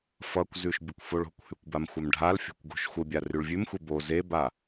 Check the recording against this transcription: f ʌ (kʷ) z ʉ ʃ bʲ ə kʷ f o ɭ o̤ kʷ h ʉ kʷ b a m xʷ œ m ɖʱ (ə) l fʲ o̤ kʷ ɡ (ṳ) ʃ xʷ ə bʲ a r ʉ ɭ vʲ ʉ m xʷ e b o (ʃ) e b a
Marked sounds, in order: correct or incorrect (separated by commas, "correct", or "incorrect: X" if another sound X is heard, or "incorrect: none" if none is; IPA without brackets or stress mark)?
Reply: correct, incorrect: a, incorrect: o̤, incorrect: z